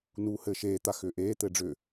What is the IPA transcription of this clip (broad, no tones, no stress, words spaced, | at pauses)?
nuːhɘːʃeːt̪a xʏːʔeːt̪ɘː ɖ͡ʐʏ